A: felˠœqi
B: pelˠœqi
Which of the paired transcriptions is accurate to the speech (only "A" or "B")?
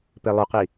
B